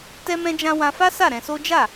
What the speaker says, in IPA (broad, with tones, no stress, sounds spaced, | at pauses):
t ɛ˦ m ɛ̃˦ d͡ʒ ã˦ w ã˧ f a˦ s a˦˨ ɾ ɛ̃˧ s o˦ d͡ʒ a˦˨